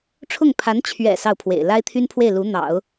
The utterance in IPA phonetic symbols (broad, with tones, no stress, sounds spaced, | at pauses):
ʈ͡ʂʰ ʊ˥˩ ŋ pʰ a˧˥ n t͡ɕʰ ɥ ɛ̰˨˩ s ɑ˥˩ ʊ̯ pʰ w ḛ˨˩ ɪ̯ l a˥ ɪ̯ t̪ʰ y˥ n pʰ w e˥˩ ɪ̯ l u˧˥ n̪ ɑ̰˨˩˦ ʊ̯